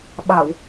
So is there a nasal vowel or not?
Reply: no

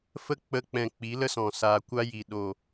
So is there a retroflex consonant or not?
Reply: no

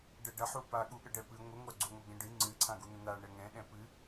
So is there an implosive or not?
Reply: yes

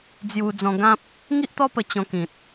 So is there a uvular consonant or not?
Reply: no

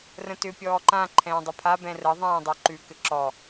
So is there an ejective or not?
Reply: no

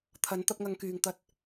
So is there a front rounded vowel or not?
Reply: yes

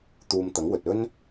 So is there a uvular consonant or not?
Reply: no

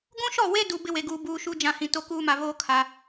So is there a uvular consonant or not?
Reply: no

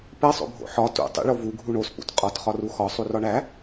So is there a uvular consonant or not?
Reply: yes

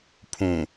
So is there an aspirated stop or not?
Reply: yes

